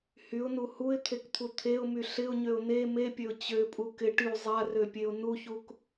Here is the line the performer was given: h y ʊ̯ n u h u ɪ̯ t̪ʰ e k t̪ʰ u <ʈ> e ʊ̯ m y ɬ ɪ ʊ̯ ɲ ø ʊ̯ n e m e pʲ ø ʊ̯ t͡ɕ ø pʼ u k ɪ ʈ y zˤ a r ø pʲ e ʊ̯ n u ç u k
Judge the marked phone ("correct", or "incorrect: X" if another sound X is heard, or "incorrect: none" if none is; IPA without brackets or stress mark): incorrect: t̪ʰ